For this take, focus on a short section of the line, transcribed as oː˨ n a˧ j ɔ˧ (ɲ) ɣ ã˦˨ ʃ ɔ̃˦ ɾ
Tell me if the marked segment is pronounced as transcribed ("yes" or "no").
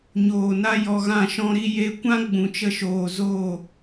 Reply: no